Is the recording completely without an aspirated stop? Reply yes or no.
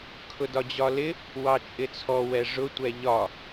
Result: no